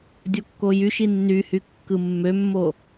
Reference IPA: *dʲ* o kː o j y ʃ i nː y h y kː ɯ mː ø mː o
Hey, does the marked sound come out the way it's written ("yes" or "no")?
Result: yes